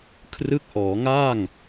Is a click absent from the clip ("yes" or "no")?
yes